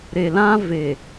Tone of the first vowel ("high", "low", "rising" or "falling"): low